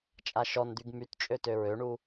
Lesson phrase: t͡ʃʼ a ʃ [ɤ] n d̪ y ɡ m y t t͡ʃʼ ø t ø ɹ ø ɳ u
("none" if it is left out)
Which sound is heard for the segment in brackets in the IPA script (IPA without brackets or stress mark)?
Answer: ɔ